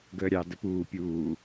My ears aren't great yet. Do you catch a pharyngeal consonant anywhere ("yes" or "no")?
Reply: no